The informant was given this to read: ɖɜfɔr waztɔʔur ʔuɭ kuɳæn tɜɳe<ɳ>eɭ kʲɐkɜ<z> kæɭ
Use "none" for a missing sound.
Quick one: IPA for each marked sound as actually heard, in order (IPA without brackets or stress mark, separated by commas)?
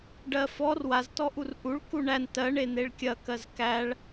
n̪, z